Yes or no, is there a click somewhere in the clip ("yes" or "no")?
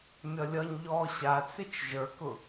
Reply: no